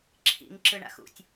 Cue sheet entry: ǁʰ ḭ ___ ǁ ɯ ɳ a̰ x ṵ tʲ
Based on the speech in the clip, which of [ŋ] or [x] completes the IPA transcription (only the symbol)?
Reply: ŋ